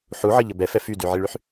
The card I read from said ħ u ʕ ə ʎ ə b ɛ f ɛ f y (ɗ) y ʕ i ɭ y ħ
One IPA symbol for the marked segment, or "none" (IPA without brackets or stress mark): d